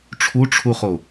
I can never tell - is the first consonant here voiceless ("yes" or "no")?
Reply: yes